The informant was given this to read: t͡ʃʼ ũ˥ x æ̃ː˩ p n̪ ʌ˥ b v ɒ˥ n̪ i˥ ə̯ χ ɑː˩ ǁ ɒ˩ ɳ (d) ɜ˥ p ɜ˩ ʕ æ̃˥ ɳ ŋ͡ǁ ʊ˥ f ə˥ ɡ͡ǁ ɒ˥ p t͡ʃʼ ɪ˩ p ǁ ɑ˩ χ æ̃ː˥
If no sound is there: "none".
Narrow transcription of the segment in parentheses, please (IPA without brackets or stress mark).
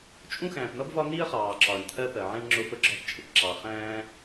t̪ʰ